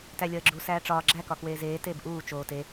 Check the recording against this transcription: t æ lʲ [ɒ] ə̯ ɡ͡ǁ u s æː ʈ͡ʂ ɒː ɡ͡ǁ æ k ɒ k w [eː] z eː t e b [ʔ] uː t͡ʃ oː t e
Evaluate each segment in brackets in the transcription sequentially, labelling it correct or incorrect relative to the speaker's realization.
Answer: correct, correct, correct

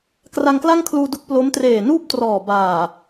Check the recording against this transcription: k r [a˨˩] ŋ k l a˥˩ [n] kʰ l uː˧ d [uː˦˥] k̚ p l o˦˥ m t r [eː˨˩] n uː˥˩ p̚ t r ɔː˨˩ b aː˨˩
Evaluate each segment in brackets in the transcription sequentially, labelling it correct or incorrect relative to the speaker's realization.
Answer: incorrect: a˧, incorrect: ŋ, incorrect: u˦˥, correct

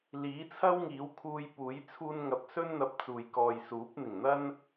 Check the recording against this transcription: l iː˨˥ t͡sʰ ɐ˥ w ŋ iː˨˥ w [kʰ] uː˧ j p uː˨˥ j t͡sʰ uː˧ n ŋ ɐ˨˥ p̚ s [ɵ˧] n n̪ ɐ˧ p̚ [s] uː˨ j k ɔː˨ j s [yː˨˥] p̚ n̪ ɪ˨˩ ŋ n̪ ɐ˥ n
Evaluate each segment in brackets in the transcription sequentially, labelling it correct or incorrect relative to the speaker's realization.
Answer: correct, incorrect: ɵ˥, incorrect: t͡s, incorrect: uː˨˥

